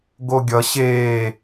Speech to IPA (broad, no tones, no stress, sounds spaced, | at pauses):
ɡ o ɡʲ ʌ ɕ eː